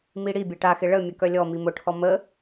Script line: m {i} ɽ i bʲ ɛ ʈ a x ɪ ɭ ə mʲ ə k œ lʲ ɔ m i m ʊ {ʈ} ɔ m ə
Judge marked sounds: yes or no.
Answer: yes, no

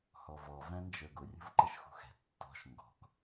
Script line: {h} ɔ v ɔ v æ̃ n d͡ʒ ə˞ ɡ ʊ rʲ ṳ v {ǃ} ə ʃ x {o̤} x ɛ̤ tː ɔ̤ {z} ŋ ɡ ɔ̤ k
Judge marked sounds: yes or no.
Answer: yes, yes, no, no

